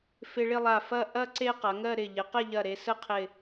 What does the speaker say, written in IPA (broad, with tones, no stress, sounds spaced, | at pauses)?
f ɪ˧ ɭ ɪ˥˧ lˠ a˧˩ f ɐ˥˧ ʔ ɐ˥ ǀ e˥ q ɐ˩˧ ŋ ɜ˥˧ ɾ ɪ˧˩ ʎ ɪ˩˧ q e˥˧ ʎ ɐ˧˩ ɾ e˧ s ə˥ qʰ ɪ˧˩